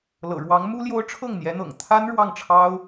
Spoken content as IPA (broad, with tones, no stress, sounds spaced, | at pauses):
l ɤ̰˨˩ ɻ w ɑ˧˥ ŋ m u˥ l j o˥ ʊ̯ ʈ͡ʂʰ ɤ˥˩ ŋ n̪ j ɛ˧˥ n̪ ɤ̰˨˩ ŋ t̪ʰ a˥ n ɻ w ɑ˥˩ ŋ ʈ͡ʂʰ ɑ˥ ʊ̯